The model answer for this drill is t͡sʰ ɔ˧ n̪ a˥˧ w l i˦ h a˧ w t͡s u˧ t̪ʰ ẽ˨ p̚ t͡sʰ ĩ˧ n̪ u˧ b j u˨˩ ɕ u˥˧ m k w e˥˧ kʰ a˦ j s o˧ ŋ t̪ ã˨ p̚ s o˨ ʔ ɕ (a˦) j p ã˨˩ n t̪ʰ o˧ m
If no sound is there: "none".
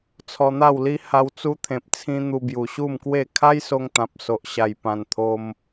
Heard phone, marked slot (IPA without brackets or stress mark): a˨˩